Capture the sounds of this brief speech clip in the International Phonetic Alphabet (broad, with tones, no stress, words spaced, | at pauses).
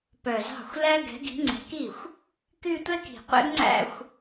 pœ˨˩zɑ̤˥˩xʷlæ˥ ɡɛ̤˨˦ɡi̤˨˦ŋ͡ǀɛ̤˨˦ki˥˩xʷ | ky˥˧tʷɛ˥ki̤˨˩ qʷɛ̰˥ɡŋ͡ǀæ̰˥˧xʷ